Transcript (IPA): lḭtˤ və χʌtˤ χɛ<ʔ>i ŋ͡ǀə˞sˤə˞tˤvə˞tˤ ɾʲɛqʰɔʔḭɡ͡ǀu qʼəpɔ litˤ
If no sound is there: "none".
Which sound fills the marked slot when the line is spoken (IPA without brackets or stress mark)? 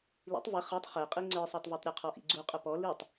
qʼ